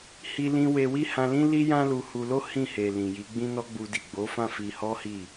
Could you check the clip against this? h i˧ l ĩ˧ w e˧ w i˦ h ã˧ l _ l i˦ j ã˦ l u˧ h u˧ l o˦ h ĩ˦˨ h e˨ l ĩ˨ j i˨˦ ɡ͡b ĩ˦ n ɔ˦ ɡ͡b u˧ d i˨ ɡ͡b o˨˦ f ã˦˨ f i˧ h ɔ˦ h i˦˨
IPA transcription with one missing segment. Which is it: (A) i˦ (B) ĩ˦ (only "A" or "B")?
B